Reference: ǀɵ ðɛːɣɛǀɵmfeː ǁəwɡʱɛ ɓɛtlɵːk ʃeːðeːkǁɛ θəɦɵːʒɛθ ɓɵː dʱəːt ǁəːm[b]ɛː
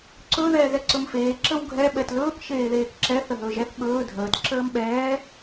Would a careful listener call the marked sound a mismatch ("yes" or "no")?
yes